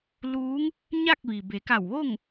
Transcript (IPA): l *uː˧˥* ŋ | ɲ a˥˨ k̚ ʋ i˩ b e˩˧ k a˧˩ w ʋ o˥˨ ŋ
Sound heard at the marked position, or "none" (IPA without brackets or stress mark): uː˧˥